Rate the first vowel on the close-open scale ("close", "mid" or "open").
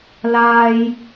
open